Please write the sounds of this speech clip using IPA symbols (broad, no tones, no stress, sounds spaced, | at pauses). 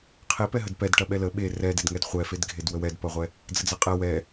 qʰ e p ɛ ɦ ə d p ɛ d ʈ ɐ ɓ ɛ l ə ɓ e r ɛ d e d ŋ ɛ d χʷ ɛ f e d ɡʱ e d w ə w ɛ d p ɐ ʁʷ ɛ | d͡z ə d͡z ɐ qʼ ɛ w ɛ